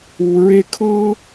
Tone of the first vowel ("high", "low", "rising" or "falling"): low